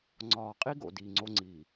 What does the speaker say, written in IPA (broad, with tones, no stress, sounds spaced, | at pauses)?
ŋ͡ǀ ɒː˨ qʼ i˦ ɡ o̰˨ d iː˨ ŋ͡ǀ o˦ ŋ͡ǀ iː˨